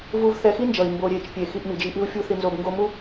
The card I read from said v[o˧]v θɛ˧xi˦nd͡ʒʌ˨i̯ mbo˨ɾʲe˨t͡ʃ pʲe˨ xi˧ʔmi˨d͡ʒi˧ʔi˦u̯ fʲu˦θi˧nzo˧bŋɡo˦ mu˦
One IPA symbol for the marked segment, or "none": u˧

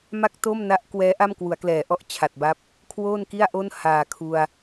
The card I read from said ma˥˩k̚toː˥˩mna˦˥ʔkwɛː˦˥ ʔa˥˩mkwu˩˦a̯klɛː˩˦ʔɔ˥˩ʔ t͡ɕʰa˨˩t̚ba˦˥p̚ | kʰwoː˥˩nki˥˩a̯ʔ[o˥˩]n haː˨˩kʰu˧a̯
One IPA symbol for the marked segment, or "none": o˥˩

